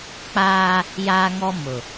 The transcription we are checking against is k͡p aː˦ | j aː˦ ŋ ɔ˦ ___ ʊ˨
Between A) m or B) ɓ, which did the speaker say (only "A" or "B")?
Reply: A